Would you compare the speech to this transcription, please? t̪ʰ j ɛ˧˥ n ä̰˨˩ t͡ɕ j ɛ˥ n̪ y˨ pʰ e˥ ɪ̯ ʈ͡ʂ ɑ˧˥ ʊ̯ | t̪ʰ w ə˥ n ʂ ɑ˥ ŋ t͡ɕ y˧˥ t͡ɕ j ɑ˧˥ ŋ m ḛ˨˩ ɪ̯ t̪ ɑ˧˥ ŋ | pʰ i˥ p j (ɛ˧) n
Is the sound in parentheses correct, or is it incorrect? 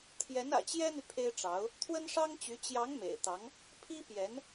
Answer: incorrect